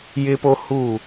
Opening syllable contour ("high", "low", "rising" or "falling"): high